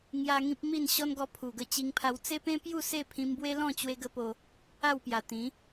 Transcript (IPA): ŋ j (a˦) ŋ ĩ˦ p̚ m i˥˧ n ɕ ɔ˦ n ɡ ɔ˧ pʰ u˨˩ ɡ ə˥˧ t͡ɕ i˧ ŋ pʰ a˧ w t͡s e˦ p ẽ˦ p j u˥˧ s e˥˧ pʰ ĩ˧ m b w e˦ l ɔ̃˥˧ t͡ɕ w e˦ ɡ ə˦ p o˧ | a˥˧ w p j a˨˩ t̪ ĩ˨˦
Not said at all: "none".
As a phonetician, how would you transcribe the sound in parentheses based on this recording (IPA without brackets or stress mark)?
a˧